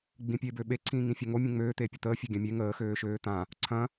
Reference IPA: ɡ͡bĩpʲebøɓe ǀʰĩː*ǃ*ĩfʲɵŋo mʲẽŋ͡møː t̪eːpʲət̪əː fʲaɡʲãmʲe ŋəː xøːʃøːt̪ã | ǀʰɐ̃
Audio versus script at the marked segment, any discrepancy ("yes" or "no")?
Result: yes